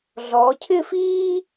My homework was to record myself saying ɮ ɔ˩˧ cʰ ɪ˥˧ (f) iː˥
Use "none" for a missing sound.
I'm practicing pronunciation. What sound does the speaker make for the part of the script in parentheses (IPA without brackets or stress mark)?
f